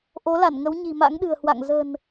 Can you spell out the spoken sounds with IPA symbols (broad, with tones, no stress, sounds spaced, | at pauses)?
ʔ o˨˦ l a˧˩ n ŋ ə˨˦ w ɲ i̤˨˩ m a̰˧˥ ŋ ɗ ɨ̤˨˩ ə̯ h w a̰˧˨ ŋ z ə̤˨˩ n